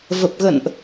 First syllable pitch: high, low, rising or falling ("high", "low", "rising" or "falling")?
low